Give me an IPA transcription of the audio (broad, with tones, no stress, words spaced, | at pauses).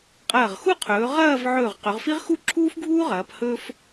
qʼɐː˧˩ʁxu˥˧qʰɵː˩˧ ʁɐː˥˧v ʕɵː˧˩ʁ qɵ˩˧ʁfi˥ʁ xu˥ǁʰuː˥fɡʱuː˥ʁɐː˩˧p hɵ˥f